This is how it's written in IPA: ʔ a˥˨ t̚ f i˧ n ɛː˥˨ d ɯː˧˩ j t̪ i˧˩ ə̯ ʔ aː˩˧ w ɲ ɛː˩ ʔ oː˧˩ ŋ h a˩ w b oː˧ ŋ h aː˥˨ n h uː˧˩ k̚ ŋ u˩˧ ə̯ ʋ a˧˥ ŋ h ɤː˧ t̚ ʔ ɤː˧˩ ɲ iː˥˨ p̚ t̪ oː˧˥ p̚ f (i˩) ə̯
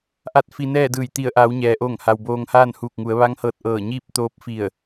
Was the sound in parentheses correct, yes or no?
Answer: no